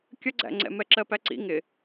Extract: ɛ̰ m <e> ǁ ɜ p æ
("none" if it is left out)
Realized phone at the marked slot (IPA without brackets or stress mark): ɛ